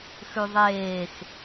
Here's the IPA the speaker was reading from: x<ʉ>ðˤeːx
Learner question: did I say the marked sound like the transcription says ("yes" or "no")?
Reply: yes